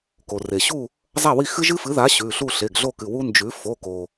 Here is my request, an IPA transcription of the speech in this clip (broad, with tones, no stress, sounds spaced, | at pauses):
k o˩ r e˩ ɕ u˥˨ | zˤ a˥˨ w i˥˨ x ɨ˦ ʒ ɨ˦ f ɨ˩˥ ð a˩˥ ɕ ʉ˩˧˩ ɬ u˥˨ ɬ e˩˧˩ ɡ ɮ o˥˨ k ɨ˩˧˩ w u˦ n d͡ʒ ʉ˩˥ f o˩˧˩ k o˩